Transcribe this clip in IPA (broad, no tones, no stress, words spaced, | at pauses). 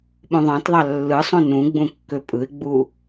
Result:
ɓũðˤɑ̃tðˤɑ lːɯsˤũ nũɡ͡bũ kːøpʼɯɪ̯ɡ͡bu